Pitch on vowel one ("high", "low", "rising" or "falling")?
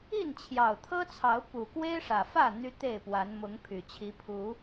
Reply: falling